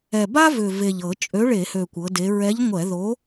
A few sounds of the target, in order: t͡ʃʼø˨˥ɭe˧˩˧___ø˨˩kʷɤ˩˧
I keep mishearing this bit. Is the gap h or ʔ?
h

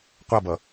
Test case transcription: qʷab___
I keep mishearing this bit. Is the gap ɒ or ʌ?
ʌ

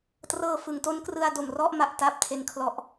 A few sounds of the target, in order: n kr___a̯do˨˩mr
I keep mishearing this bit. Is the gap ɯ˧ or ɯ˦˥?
ɯ˧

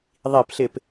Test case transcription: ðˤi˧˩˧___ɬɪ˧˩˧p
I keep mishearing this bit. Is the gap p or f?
p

